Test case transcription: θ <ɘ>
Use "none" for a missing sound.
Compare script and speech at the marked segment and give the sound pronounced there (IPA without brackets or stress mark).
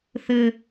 ɘ